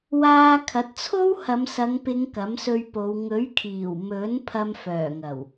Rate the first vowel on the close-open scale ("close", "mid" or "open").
open